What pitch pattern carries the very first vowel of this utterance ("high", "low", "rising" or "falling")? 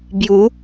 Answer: rising